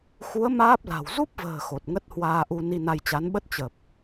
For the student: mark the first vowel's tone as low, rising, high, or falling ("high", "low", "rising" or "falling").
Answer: rising